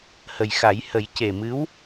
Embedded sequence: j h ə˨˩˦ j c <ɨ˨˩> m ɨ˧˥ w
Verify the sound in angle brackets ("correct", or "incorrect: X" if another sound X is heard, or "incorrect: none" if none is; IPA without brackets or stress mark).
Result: incorrect: e˨˩